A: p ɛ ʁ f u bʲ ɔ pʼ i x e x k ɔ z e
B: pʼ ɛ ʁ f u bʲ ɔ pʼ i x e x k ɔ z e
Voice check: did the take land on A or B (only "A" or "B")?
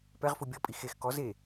A